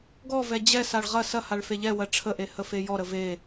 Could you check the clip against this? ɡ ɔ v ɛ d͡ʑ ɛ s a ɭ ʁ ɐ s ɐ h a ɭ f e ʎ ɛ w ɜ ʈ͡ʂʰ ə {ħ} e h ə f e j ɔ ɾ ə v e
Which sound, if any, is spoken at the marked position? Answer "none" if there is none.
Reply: ʔ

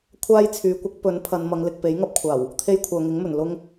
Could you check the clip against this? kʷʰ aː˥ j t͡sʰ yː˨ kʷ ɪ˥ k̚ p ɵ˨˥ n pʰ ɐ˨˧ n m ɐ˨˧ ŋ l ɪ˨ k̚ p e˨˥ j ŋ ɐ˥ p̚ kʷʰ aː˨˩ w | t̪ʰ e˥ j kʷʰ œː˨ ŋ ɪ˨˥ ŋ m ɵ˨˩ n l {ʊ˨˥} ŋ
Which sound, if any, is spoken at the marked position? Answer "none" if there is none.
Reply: ʊ˥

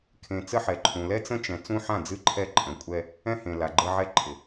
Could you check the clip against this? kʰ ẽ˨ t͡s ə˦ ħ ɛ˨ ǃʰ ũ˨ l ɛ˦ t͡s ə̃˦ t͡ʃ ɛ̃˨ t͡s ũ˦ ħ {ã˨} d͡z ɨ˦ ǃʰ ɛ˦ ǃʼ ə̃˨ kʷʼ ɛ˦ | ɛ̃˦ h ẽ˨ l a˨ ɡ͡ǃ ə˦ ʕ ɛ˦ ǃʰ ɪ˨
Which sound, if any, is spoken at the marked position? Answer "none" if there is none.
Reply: ã˦˨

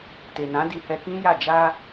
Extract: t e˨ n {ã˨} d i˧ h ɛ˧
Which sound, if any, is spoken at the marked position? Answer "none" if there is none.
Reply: ã˨˦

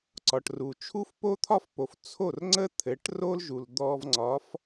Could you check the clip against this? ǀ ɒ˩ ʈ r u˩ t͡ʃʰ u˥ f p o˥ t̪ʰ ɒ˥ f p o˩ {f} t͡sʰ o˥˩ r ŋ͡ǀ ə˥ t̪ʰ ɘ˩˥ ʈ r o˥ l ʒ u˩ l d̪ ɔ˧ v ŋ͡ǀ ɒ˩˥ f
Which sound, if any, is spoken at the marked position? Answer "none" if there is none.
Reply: f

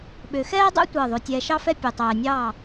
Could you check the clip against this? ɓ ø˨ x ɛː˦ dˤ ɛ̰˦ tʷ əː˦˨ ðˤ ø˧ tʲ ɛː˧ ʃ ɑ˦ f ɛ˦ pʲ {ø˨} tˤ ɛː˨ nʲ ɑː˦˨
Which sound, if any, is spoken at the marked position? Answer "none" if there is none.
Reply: ø˨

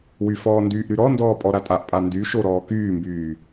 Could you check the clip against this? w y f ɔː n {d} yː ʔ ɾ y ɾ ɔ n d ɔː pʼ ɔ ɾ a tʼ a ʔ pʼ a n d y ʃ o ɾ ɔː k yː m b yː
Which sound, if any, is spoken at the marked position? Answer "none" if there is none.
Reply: d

